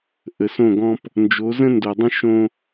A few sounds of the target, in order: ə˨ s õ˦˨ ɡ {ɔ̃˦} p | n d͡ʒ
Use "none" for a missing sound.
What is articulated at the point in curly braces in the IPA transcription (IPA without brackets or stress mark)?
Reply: ɔ̃˦